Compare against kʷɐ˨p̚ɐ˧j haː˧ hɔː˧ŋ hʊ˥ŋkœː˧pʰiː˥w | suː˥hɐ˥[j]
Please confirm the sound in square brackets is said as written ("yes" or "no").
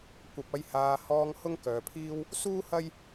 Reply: yes